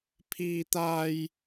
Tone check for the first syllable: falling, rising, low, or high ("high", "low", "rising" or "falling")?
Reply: high